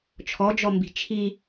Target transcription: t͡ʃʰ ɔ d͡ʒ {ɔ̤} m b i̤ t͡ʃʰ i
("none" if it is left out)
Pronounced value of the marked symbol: ɔ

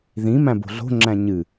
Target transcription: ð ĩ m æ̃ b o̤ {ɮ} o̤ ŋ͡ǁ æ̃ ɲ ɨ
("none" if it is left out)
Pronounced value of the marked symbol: ɮ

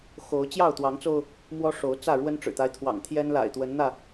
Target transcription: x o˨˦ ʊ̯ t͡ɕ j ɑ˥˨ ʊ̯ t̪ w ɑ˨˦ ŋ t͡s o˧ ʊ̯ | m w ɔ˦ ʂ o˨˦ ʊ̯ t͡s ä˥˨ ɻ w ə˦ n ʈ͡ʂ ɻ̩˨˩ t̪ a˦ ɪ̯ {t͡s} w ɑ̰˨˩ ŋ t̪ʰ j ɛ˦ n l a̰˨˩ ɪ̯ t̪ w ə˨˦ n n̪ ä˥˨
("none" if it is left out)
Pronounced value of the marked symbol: t̪ʰ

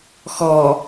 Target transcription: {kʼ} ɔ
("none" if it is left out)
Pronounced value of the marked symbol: x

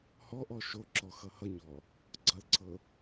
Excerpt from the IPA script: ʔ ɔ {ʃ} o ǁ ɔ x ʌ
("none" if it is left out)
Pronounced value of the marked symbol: ʃ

